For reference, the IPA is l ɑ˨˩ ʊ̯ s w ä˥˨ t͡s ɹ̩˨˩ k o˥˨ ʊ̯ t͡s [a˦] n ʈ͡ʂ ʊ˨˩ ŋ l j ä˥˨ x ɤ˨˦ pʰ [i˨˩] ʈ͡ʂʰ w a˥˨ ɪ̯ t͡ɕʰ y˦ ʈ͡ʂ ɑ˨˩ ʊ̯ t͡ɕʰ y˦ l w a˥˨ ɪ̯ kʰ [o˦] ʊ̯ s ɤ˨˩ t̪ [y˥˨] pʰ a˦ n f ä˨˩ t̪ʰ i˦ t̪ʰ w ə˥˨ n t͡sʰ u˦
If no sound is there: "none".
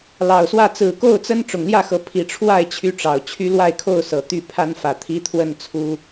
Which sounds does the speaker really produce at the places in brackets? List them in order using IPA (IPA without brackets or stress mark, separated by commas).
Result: ə˦, i˨˩, o˥˨, y˥˨